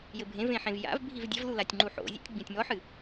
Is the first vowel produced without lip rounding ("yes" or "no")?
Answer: yes